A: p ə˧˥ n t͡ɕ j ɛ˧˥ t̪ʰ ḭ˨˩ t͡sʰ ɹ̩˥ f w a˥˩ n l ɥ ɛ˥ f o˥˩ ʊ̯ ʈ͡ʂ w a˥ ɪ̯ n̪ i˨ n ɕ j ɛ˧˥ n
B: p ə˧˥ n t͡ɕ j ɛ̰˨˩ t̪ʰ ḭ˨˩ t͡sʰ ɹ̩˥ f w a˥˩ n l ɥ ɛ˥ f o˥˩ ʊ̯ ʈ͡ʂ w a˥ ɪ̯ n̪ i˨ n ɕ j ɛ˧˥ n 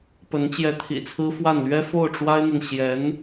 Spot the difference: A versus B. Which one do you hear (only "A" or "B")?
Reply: A